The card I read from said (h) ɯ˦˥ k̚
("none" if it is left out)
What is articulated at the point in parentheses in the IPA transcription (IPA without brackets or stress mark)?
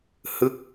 h